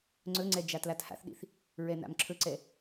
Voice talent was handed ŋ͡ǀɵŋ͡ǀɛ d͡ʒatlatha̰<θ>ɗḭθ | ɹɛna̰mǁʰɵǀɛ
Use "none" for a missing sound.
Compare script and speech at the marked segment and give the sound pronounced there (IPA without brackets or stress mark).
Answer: θ